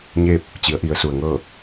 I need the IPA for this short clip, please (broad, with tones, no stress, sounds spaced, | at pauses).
ɲ eː˥˨ p̚ | t͡ɕ i˩˧ ə̯ ʔ i˩˧ ə̯ s u˩ ə̯ ŋ ɤː˥˨